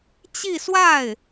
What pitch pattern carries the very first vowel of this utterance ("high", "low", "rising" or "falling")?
falling